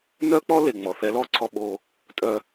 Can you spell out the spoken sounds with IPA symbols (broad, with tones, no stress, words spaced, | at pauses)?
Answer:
nœ˥k͡pɔ˥le˩ ŋ͡mɔ˩θɛ˧lɔ˥ǀʰɔ˧ ɓo˧ | tʼœ˥